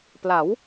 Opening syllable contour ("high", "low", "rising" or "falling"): rising